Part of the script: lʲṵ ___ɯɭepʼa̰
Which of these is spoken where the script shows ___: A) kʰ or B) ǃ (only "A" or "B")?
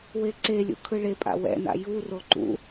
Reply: A